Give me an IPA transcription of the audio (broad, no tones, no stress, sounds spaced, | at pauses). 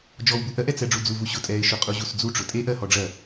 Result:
d͡ʒ ɔ w b u ʔ ɜ ʔ ɛ t͡s ɛ ɖ͡ʐ u d͡z u v u ɕ ʊ tʼ ɛ ɪ̯ ʃ ʊ qʼ u ʑ u s d͡z u ʈ͡ʂ ʊ tʼ e ʔ ɜ h ɔ ɖ͡ʐ ɜ